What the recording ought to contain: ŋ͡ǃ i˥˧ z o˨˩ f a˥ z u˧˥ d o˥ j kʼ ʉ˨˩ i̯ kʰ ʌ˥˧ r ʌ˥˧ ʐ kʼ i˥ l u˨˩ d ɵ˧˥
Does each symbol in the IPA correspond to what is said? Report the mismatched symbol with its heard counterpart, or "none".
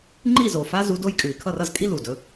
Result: ʐ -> z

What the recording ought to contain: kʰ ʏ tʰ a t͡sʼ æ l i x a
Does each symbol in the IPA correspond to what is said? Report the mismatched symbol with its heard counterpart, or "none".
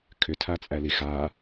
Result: none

